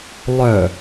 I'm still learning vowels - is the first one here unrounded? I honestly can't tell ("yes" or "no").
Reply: no